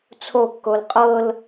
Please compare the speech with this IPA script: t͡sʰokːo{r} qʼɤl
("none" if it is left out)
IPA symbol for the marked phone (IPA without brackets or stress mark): l